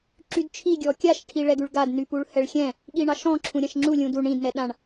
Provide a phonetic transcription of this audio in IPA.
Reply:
ǁydt͡ʃʰi ɡʲɔkʲaʃ ʈʰiɭɛɡʉɭɡad nypuɭhɛɭxʲɛ̃ | ɠiɳɑʃɔ̃ ǁʰũɾʲãʃŋ͡ǁu lʲũdu ɳĩd nɛɗãɳ

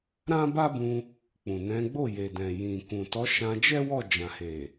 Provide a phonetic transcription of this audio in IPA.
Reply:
ɾã˦ba˦bũ˧ | k͡pũ˨nɛ̃˨˦ɡ͡bo˦˨ je˨dɛ̃˨jĩ˨ kũ˨tɔ˨˦ ʃã˧d͡ʒɛ˦ wɔ˦˨d͡ʒã˨he˨

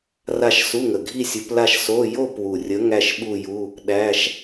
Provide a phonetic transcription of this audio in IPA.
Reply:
ra˥˧ʃ su˧˥˧ŋə˨˩ɡʱi˥˧ sʲu˨˦pla˥˧ʃ so˧˥˧ jo˥˧pwu˨˩rʲə˨˦ ŋæ˥˧ʃɓu˥˧ju˧˥˧ | ɗæ˧˥˧ʃ

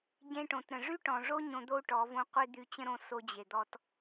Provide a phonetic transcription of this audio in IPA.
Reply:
ɟẽ˧ʈõ˨tɾə̃˨ ʐy˦ʈɔ̃˨ʐo˦ ɲõ˧d̪o˦u̯ ʈɔ˨˦võ˦ qʷe˦d̪y˧t͡ɕə̃˦ɾõ˧ so˧d͡ʑe˨d̪ɔ˧t

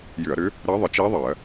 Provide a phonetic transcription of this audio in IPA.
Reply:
jʏ˧˩˧ɐ̯ɾʏ˧˥ | ɾɜ˧˥ðˤɪ˧˩˧ t͡ʃi˧˥ðˤɜ˧˩˧

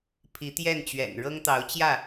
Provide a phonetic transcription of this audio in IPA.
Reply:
pʰi˨˦t̪jɛ˥˨nt͡ɕɥɛ̰˨˩n ɻɤ˦ŋt̪ɑ˨˦ʊ̯t͡ɕjä˥˨

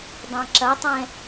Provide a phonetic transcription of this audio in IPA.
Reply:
dˤãǁɐtˤɛ̃

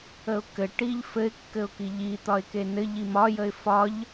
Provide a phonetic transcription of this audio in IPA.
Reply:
əʊ̯kɘʈiʎ fɘɪ̯kːɘʊ̯ki ʎi t̪ɒɪ̯kenɘ ʎimɒjəɪ̯ fɒʎ

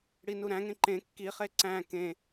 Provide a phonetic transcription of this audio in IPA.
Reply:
ɽinuɾæ̃ŋẽ ǃẽ kːiχe ǀæ̃ kẽ

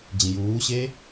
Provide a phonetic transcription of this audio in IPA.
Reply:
d͡ʑĩjuːɕe

